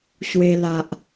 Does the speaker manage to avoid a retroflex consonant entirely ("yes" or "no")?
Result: yes